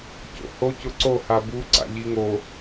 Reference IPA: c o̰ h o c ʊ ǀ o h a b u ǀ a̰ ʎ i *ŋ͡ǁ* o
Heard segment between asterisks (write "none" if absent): ŋ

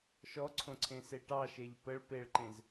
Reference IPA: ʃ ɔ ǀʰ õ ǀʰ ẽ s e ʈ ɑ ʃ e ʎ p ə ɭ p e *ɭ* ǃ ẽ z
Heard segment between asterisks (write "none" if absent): ɭ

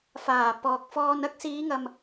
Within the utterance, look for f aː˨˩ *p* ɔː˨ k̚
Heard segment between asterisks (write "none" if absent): p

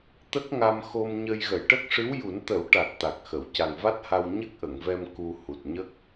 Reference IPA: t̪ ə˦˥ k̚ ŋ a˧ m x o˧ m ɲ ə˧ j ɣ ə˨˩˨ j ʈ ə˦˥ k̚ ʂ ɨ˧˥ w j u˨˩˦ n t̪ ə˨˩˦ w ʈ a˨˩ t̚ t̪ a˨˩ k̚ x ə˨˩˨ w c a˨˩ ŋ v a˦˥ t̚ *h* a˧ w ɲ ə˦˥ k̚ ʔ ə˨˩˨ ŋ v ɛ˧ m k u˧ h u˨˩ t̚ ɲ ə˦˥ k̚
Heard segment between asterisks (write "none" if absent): h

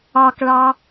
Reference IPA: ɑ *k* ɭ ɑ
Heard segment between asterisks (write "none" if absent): k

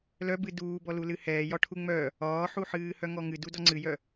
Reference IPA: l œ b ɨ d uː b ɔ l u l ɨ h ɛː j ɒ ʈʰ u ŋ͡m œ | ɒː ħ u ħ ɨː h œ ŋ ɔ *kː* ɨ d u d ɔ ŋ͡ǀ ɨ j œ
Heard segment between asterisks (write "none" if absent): ŋ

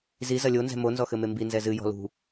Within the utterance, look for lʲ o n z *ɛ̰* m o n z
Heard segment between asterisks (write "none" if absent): ɛ̤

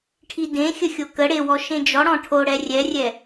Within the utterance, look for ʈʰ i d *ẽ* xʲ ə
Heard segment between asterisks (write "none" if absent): ẽ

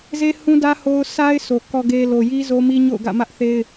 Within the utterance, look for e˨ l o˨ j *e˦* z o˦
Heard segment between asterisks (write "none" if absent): i˦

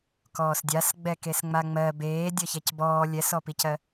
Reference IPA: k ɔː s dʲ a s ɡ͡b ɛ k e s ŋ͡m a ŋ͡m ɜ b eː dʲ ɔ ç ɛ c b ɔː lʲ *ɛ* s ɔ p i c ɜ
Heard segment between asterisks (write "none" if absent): ɛ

